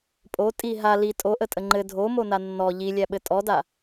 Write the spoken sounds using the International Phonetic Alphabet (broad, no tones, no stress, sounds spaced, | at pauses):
pʼ o tʼ i ɦ a l i tʼ o ʔ ə tʼ ə ŋ͡ǃ ɘ dʱ o m o n a nː ɔ ʎ i lʲ æ ɓ ɘ tʼ ɔ d a